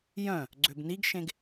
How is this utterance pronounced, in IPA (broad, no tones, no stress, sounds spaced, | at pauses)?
j œ̃ | ɡ͡ǀ ø b n i ɡ ʃ ẽ ɡ